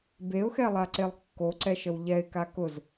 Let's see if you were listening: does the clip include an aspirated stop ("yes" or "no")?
no